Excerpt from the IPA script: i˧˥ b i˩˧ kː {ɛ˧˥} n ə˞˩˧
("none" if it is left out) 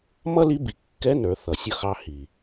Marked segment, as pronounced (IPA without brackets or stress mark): ɛ˧˥